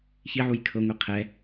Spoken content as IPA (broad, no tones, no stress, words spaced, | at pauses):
çiʕuj kʰɤŋʷi qʰɛ